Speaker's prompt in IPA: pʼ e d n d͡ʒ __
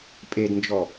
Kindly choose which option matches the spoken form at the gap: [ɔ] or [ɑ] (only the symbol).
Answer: ɔ